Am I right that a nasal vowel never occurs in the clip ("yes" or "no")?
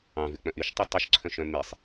no